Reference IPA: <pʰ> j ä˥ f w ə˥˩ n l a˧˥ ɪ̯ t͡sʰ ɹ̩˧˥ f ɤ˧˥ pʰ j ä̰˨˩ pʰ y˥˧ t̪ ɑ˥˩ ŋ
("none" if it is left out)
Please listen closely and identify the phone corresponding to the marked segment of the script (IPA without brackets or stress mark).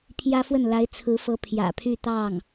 pʰ